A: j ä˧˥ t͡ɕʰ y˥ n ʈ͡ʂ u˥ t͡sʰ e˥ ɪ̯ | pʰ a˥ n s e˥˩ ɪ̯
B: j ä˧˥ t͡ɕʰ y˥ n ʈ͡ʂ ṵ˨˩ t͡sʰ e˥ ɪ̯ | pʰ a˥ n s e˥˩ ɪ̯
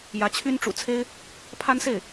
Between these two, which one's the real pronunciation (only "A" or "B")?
B